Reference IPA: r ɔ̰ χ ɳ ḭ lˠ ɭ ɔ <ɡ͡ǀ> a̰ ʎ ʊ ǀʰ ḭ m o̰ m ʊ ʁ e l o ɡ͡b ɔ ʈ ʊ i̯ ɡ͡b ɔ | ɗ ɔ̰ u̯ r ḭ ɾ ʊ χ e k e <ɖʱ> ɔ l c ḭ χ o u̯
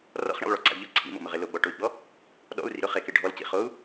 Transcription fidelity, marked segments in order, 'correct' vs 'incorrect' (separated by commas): incorrect, correct